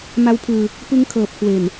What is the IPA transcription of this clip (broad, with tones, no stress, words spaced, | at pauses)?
ma˦˥wpʰɯː˧ | pɯ˦˥ŋkʰɤː˨˩p̚kʰwe˨˩n